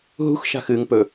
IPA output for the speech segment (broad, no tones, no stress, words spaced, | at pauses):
ɦṳxʃa̤ xɨŋ pɵ